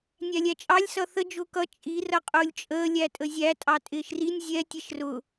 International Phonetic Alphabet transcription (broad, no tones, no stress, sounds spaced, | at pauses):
nʲ æ lʲ æ t͡ʃʼ ɑ lʲ s ʌ θ ə d͡ʒ ʊː k ʌ t͡ʃʼ i r ʌ qʼ ʊː lʲ t͡ʃʼ əː lʲ æ tʼ ə zʲ æ tʼ ɑ tʼ ɪː ʃ r i nʲ zʲ ɛ tʲ ɛ ʃ r ʊ